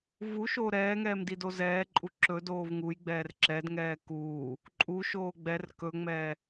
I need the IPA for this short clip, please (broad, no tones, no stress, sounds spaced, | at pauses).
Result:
v u ʃ oː ɾ ɛː ŋ ɛː m d i d o z ɛː ǃʼ u ǁ ɵ d oː v ŋ u j ɡ͡b ɛː r ǁ ɛ d ŋ ɛː k uː | ǃʼ u ʃ oː ɡ͡b ɛ r k ɵ ŋ͡m ɛː